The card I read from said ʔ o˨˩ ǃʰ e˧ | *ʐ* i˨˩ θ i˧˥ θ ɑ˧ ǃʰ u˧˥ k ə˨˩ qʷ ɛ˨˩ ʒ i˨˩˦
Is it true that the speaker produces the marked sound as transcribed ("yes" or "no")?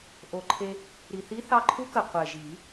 no